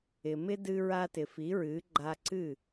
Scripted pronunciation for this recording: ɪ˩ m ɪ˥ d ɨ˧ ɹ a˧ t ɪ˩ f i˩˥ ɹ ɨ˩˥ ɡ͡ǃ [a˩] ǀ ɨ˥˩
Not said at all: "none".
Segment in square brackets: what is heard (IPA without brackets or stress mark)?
a˧